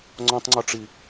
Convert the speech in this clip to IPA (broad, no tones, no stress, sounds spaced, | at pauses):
ŋ͡ǀ ɔ̃ tˤ ŋ͡ǀ ɔ ʈ͡ʂ i